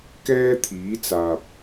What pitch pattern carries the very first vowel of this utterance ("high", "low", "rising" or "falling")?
high